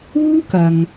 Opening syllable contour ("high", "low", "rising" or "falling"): high